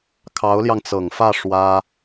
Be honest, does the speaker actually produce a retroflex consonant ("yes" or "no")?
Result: yes